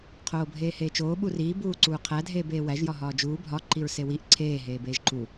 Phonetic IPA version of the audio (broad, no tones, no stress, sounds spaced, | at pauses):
qʰ oː bʱ eː h eː t͡ʃ oː ɓ u r iː b uː ǀ uː qʰ æ dʱ eː b eː w æ ʒ j ɒ ɦ ɒː d͡ʒ uː bʱ ɒ ǃ i ɹ s e w i ʔ ǀʰ eː ɦ eː b eː ʒ ǃ u